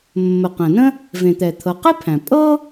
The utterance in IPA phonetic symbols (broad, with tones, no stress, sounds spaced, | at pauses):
mː ə˩ q æ̃˩ n ə̃˥ | v ẽ˩ t̪ ɛ˩ t̪ʰ ɤ˩ q e˥ pʰ æ̃˩ pʼ ɤ˥